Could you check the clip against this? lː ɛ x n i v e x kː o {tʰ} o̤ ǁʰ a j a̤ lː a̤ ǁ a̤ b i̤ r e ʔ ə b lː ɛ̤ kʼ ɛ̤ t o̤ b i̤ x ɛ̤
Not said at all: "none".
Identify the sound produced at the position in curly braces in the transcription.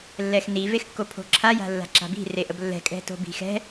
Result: pʰ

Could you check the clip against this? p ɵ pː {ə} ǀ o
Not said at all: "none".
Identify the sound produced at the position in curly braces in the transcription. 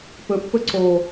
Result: ɵ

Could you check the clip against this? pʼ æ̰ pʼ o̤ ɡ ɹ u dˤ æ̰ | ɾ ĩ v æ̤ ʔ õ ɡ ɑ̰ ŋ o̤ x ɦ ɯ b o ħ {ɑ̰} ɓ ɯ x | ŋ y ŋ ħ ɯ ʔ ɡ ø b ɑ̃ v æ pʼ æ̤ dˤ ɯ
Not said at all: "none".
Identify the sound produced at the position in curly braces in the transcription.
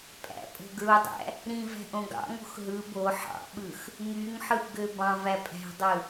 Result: ɑ̰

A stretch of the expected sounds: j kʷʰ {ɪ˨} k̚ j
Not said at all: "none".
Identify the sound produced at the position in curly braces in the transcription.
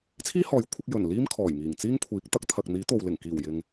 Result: ɪ˧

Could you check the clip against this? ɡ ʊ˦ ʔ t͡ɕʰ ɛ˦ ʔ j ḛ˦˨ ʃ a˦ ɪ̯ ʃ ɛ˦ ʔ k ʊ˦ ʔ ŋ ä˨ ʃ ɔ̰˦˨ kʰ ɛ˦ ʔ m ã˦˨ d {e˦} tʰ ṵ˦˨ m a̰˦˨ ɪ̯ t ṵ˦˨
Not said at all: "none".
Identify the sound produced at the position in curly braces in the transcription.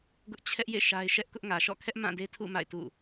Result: e˦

